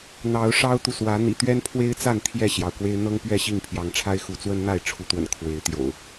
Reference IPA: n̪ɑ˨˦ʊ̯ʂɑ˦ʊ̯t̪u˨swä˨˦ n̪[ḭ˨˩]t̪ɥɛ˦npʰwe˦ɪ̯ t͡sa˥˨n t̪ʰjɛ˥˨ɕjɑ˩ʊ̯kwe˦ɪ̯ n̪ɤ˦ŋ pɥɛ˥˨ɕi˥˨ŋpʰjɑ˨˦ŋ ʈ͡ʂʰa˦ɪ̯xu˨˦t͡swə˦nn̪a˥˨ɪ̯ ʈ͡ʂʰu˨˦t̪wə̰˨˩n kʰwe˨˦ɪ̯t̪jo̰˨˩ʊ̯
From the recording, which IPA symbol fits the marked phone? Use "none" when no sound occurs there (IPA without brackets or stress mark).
ḭ˨˩